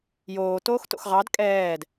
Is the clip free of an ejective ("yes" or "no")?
no